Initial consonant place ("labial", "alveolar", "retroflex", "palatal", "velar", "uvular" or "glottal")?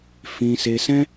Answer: labial